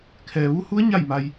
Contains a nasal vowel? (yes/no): no